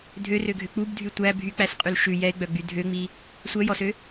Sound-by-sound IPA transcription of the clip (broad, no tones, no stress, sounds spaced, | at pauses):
dʱ ø r ø ɡʱ ø k͡p u b dʱ y tʷ æ bʱ y k͡p æ s qʼ y l ʃ ʉ j ɛ ɪ̯ ɡ͡b œ ɡ͡b y dʱ ø ŋ͡m i | sʷ œ j ɔ s ø